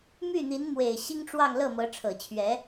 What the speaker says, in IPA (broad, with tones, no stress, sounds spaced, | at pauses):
m y˥˩ n̪ i˧˥ n m w e˨˩ ɪ̯ ɕ i˥ ŋ ʈ͡ʂ w ɑ˥˧ ŋ l ɤ˥˩ m ɤ˧˥ ʈ͡ʂʰ ɤ˨˩ t͡ɕʰ ɥ ɛ˧˥